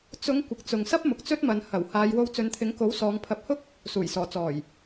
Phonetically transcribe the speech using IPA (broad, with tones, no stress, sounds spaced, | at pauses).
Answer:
t͡s ʊ˨˧ ŋ kʷ ɪ˨ k̚ t͡s ʊ˨ ŋ s ɐ˥ p̚ m ʊ˨ k̚ t͡s ɵ˥ t̚ m ɐ˨˧ n h ɐ˨˩ w h aː˨˧ j w o˧ w t͡s ɵ˨˧ n t̪ʰ ɪ˨˥ ŋ k o˨˥ w s ɔː˨˧ ŋ pʰ ɐ˨˥ p̚ h ʊ˥ k̚ | s uː˨˩ j s ɔː˨˩ t͡s ɔː˨˩ j